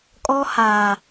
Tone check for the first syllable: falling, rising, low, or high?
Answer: high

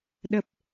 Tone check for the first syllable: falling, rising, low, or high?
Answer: low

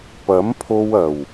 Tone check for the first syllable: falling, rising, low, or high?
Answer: rising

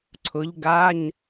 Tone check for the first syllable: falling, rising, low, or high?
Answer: rising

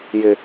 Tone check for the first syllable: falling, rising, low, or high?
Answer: low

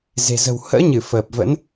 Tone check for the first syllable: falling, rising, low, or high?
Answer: low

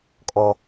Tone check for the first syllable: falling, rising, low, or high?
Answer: low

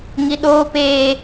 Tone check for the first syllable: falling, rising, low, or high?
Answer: high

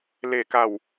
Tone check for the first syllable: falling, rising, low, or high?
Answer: low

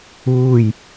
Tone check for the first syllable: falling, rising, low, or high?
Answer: falling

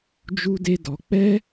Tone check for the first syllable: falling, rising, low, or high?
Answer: high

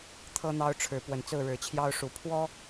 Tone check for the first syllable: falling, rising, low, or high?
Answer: high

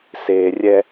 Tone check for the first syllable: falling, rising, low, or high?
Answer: low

